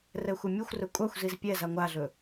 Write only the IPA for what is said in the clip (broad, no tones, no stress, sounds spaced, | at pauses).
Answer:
r ɛ xʷ ɛ mʲ u xʷ r ɵ kʷʼ a xʷ z i z pʲ ɛ z a ŋʷ a ɮ ɵ